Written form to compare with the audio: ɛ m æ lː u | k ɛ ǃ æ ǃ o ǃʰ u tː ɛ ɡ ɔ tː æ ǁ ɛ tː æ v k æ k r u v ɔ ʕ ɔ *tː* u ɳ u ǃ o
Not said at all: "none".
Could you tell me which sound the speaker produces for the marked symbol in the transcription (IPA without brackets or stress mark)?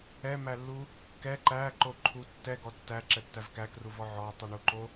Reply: tˤ